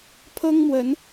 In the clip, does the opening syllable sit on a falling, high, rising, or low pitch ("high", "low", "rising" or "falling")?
high